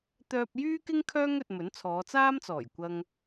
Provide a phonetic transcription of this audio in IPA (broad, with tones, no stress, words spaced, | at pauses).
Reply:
t̪œː˧p̚jyː˥kɪ˥ŋkʰœː˥ŋ ɵ˧t̚ mɵ˨˥nt͡sʰɔː˨˧ t͡saː˥mt͡sɔː˨˩j kʷɐ˨ŋ